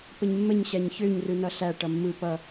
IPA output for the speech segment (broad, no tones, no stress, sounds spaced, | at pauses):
p ə ɲ mː ə ɲ ɕ æ ɲ ç ø ɲ r ɯ n ʌ ɬ æ ʈ ʌ mː ɯ p ʌ